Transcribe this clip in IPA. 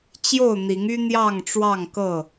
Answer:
t͡ɕ j o˥˨ ʊ̯ n̪ i˨˦ ŋ y˦ n̪ j ɑ˥˨ ŋ ʈ͡ʂ w ɑ˥˨ ŋ k ɤ˥˨

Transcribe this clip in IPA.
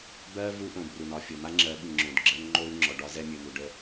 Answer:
b ɜ˦ v u˦ ʔ õ˨ b r u˨ n ɒ˦˨ fʲ o˨ m a˦ ŋ͡ǁ ɜ˨˦ ɓ ɯ˨ ŋ͡ǁ õ˨ d ɡ͡ǁ ə˦ n ŋ͡ǃ o˦ y̯ ŋ͡ǁ ɔ˨ ɖ ɒ˦ z ɛ˦ mʲ ɯ˨ n̪ u˨ ɖ ə˦

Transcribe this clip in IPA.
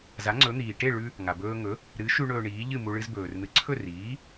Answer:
z a˩˥ ŋ͡ǀ ɵ˩˥ n̪ iː˩ ʈ e˥˩ ɭ ʉ˧ | ŋ a˩ b ɵː˧ ŋ ɵ˩˥ | ɾ ɨ˩˥ ʃ ʉ˧ ɳ ɵː˧ ɳ iː˩˥ ʎ ɨ˥˩ m u˧ ɭ ɨ˧ z b ɵː˩ r n̪ ɨ˩˥ ǀʰ ɵ˥˩ r iː˩˥

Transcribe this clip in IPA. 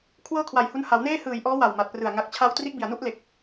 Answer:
kʰ w ɤː˥˩ kʰ w a˨˩ j h u˧ n h a˩˦ w n eː˥˩ h ɯː˨˩ j ʔ ɔː˦˥ w a˨˩ w m a˨˩ t̚ p r ɯ˨˩ a̯ ŋ a˨˩ k̚ t͡ɕʰ a˦˥ w t r i˦˥ ʔ b i˨˩ a̯ n u˥˩ ʔ l e˨˩ k̚

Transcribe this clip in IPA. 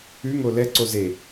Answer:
ʉ ŋ o l ɛ ǀ o z e

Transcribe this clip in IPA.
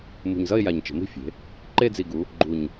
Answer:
m ṳ˨˩ ɲ z ʌ˦˨ ɪ̯ j a˨˩ ɲ t͡ʃ ə̤˩˧ m i̤˦˨ fʲ e̤˩˧ | ǃ e˦˨ d͡z i˨˩ ɡ u˩˧ | ɡ͡ǃ u˨˩ ɲ

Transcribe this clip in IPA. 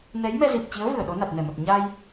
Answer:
n ɛ˨˦ j m ɛ˧ z i˨˩ p̚ t͡ɕ i˨˦ ə̯ v ɨ˧˩ ə̯ ɗ o˨˦ n a˨˩ t̚ n ɛ˧˩ m ə˨˩ t̚ ɲ a˧ j

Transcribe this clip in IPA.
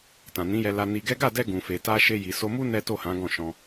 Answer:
t ã˨ n ĩ˨˦ j ɛ˧ l a˧ n i˧ ɡ ɛ˦ ɡ a˦˨ d ɛ˧ ɡ ũ˨ f e˨ t a˧ ʃ e˧ j i˨ s o˧ m u˦ n ɛ˦ t o˦˨ h ã˨˦ ɡ ɔ̃˦˨ ʃ ɔ̃˧

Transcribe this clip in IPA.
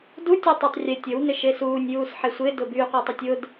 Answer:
d u tʲ œ tˤ a tˤ rʲ ɛ tʲ ə w n ɪ ʃ e s uː nʲ j uː s ħ e sʷ ɪ d ʊ b y qʷ e tˤ ʊ tʲ ʊ d

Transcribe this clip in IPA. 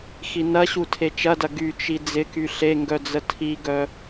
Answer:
x i n ɐ ɕ u tʰ e t͡ʃ ɐ d ɐ ɡ y t͡ʃ i d͡z ɪ k y ɬ e ŋ ɡ œ d͡z ə tʰ i ɡ œ

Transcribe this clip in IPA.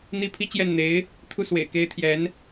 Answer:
n̪ i˥ pʰ i˥ t͡ɕ j ɛ˥˩ n n̪ e˧˥ ɪ̯ | t̪ʰ u˥˩ s w ḛ˨˩ ɪ̯ k e˧˥ ɪ̯ t̪ʰ j ɛ˧˥ n

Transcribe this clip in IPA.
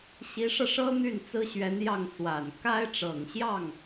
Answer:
ɕ i˧˥ ʂ ɤ˧ ʂ ɤ˥ n̪ y˥˩ n t͡s ɹ̩˥ ɕ ɥ ɛ˧˥ n j ɑ˥˩ ŋ s w a˨˩ n k a˥ ɪ̯ ʈ͡ʂ ɤ˨˩ ŋ ɕ j ɑ˥˩ ŋ

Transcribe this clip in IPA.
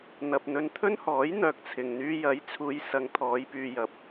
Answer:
n̪ ɐ˨ p̚ n̪ ɵ˧ n t̪ʰ ɵ˥ n h ɔː˨˥ j n̪ œː˨ k̚ t͡sʰ ɪ˨ ŋ n̪ yː˧ j ɐ˨˥ j t͡sʰ uː˨˧ j s ɐ˨˧ ŋ t̪ʰ ɔː˨˧ j p yː˨ j ɐ˨ p̚

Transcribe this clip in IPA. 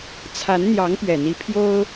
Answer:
t͡sʰ a˧˥ n n̪ j ɑ˧˥ ŋ p ɥ ɛ˨˩ n̪ i˧˥ pʰ j o˥ ʊ̯

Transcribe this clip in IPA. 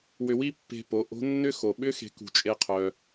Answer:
w ʏ˧ w i˥ pː e̤˧ p o˩˧ ʔ o̤˧˥ nː ʏ˥ x o˩ ɓ ʏ˧˥ x e̤˩˧ k ṳ˩˧ t͡ʃʼ e˧ qʰ œ˩

